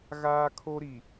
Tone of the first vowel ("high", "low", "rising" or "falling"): high